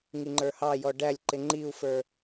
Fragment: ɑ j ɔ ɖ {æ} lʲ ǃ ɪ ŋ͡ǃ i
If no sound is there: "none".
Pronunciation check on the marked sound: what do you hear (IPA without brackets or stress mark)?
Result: æ